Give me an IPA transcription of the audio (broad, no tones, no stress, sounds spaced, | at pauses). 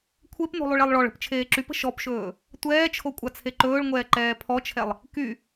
kʷʰ e p n o̤ lˠ y ɭ ɛ lˠ ɭ ɔ ɭ ə̤ p t͡ʃʰ eː ǁ y p ə̤ ʃ ɔ p ʃ ɵː | tʷ ɛː t͡ʃʰ o kʷʼ a t͡sʰ e ǃ ɵː ɭ ŋʷ ɛː ǃ ɛː pʰ ɔ t͡ʃʰ ɛ lˠ | k y